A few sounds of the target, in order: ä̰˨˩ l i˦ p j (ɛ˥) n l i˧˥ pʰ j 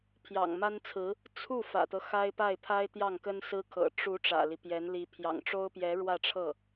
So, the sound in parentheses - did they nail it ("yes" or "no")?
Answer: no